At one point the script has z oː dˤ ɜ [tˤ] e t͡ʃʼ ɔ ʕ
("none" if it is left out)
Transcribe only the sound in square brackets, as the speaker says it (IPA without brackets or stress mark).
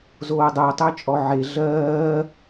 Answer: tˤ